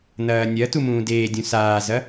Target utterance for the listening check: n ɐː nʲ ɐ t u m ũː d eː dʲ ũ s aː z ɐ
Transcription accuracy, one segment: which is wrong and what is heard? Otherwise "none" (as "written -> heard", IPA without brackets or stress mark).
none